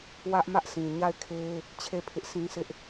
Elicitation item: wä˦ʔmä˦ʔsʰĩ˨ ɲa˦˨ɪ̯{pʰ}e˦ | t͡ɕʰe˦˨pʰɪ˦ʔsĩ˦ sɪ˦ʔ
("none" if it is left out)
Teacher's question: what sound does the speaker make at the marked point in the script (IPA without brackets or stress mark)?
kʰ